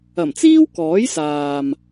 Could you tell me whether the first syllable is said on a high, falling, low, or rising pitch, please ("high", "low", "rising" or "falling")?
low